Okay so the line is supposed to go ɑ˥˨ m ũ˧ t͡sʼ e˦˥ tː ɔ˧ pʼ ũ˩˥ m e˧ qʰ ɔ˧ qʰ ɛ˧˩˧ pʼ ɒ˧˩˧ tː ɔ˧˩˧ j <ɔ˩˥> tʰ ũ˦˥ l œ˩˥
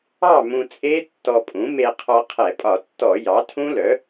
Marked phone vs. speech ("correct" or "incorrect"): incorrect